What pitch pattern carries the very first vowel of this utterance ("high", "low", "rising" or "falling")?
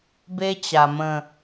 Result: high